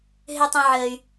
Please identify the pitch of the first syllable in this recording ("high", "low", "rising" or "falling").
high